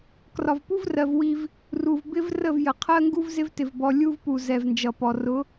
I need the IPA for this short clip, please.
k r ɒ˨ v p u˦ v r ɜ˨ v w i˦ v | r u˨ v b ɪ˦ v r ə˦˨ v j ə˨ qʰ ɜ˦ ŋ ɡ u˦ v z ɪ˦ v t ɪ˨ v b ɔ˨ lʲ u˦ v p u˨ z ɛ˨ v n d͡ʒ ʌ˨ p ɔ˨ r ʊ˨˦

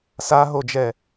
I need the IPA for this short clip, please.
s a ɦ o d͡ʒ ɛ

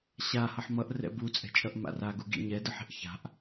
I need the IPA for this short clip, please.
ɕ a h ʌ ħ m ʌ ʔ r ɛ̰ b u t͡sʼ ɛ̤ t͡ʃʼ ʌ ʔ m a̰ r a ɡ u ɡ ḭ ɲ ɛ d ɯ ħ i̤ ʔ ç a̤ ʔ

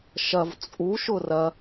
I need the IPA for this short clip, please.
ʃ ɐ v t͡sʼ u ʃ ʊ r ɐ

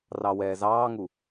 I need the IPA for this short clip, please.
r ɑ w ɛː z ɑː ŋ u

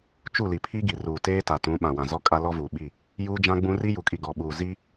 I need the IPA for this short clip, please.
t͡ʃ u˦˨ l i˨ pʰ i˦ ɡ i˨ r uː˨ t eː˦ t a˨ t ũ˨˦ ɓ ã˨ w ã˨ z ɔ˦ kʼ a˦ l ɔ˦ v uː˨ ɓ i˦˨ | j uː˦ d͡ʒ ã˦ ɡ͡b ũ˦ r i˦ j u˨ kʼ i˨ ɡ ɔ˨ ɓ uː˨ z i˦

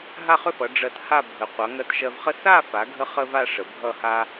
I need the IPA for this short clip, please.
ɦ a˥˧ χ ʏ˥˧ f ʌ˩˧ ɖ͡ʐ ɜ˧ t h a˥˧ bʱ ə˩˧ qʷ ʌ˩˧ ŋ ɜ˧ t ʃ ɜ˧ v χ ə˥ s a˥˧ f a˩˧ ɡʱ ə˥ χ ə˥ v a˥˧ ʂ ə˩˧ bʱ ʌ˥˧ h a˥

